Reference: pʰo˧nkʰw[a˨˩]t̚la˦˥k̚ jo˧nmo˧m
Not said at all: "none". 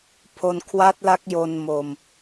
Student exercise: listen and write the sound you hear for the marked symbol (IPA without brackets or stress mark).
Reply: a˦˥